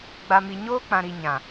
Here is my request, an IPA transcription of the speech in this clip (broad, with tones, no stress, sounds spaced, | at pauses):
ɡ͡b a˨ m i˨ ɲ oː˦ k͡p ã˨ ɾ i˨ ɲ ã˨